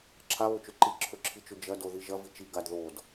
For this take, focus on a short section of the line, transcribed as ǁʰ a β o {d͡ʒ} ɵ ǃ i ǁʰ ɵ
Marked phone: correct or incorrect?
incorrect